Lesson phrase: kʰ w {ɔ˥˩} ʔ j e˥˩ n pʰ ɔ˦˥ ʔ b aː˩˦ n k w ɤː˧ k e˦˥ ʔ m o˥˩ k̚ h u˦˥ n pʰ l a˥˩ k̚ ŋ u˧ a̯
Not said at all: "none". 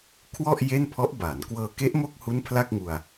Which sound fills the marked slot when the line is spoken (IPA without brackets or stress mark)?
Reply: ɔ˥˩